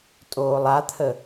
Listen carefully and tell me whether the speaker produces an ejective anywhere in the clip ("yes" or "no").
yes